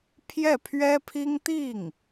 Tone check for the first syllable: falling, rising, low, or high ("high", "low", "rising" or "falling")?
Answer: falling